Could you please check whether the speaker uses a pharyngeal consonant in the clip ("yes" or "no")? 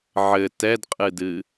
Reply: yes